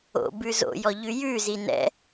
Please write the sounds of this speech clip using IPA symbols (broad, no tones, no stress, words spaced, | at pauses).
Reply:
o̰ bʉzo̰jɔ ʎʉjʉzi nɛ̰